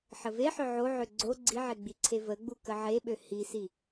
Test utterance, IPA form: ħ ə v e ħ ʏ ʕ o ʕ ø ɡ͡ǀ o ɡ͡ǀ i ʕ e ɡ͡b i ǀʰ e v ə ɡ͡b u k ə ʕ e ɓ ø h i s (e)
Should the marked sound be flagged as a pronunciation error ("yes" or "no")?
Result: yes